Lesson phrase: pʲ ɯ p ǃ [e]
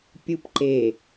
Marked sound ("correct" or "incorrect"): correct